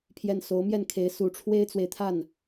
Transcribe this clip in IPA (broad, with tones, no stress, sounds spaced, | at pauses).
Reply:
pʰ j ɛ˥˩ n s o˧˥ ʊ̯ m j ɛ˥˩ n kʰ e˧˥ ɪ̯ s u˨˩ ʈ͡ʂʰ w e˥ ɪ̯ t͡s w e˨ ɪ̯ t̪ʰ a˥˩ n